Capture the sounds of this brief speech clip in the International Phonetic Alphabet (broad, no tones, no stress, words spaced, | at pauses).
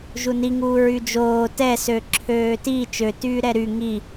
ʒuniŋuː ɹyd͡ʒoː tɛsø ǁʰøːti t͡ʃøtyː ɾɛɾy ŋi